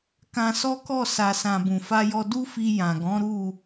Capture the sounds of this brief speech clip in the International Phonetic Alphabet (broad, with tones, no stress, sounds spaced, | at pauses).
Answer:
k ã˧ s ɔ˦ k ɔ˦˨ s a˨ s ã˨ b ũ˨ f a˧ j ɔ˧ d u˦ f i˧ j ã˨ ɡ ɔ̃˨˦ ɾ u˦˨